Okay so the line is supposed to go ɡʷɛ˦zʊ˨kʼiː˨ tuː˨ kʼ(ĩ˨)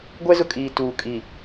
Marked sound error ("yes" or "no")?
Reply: yes